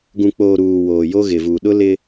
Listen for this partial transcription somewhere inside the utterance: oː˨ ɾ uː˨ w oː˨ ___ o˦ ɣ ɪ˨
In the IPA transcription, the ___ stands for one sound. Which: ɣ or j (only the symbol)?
j